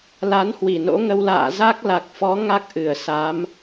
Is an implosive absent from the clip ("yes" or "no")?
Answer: yes